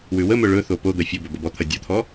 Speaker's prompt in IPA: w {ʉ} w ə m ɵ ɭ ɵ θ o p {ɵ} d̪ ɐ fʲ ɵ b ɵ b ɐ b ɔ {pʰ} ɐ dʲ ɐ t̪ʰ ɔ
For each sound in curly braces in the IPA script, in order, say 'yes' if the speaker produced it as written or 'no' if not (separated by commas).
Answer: yes, no, no